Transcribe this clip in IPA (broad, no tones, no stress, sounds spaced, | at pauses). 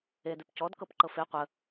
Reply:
e d ʉ p c ɔ d k ɤ p ǃ ɤ f e qʷ ə